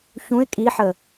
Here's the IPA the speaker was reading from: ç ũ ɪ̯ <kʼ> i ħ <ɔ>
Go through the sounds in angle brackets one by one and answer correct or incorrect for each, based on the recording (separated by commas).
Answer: correct, incorrect